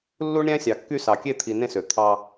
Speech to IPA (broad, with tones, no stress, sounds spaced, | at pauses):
lː u˦ ɳ ɾʲ æ̃˦ sʲ ɑ˨ kː y˦ s ɑ˨ kʲ e˦ t̪ʰ i˨ n ẽ˦ s ø˨ t̪ʰ ɑ˦